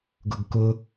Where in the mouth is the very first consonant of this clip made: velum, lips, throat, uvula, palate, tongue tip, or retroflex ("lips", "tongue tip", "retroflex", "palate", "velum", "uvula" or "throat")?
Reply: velum